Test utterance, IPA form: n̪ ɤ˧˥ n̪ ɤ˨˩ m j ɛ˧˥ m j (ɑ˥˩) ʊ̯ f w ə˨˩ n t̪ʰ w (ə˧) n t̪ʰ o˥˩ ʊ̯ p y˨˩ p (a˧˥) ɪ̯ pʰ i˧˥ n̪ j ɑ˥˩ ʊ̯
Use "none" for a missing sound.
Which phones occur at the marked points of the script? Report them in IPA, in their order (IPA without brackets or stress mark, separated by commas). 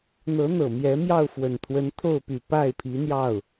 ɑ˥˩, ə˧˥, a˥˩